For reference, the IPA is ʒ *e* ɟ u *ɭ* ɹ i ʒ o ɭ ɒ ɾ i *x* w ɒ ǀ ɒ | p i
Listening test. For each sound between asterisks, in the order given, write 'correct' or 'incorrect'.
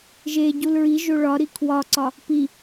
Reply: correct, incorrect: l, incorrect: kʰ

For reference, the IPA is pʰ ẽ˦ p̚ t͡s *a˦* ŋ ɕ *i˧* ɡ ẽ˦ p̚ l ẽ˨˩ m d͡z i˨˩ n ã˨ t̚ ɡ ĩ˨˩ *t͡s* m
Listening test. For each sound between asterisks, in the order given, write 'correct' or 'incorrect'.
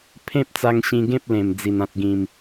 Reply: incorrect: a˧, incorrect: ĩ˧, incorrect: none

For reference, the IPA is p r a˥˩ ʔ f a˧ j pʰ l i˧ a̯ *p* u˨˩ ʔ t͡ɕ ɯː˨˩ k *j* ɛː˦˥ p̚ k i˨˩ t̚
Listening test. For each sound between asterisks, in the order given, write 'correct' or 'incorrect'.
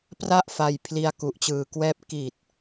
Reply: incorrect: k, incorrect: w

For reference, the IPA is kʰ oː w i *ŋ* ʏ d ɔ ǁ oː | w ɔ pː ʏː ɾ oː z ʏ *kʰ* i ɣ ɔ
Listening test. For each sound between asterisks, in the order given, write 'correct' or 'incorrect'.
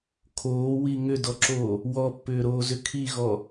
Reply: correct, correct

